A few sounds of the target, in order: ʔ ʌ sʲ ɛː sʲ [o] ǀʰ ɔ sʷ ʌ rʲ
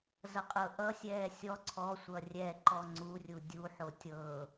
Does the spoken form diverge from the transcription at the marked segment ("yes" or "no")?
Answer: yes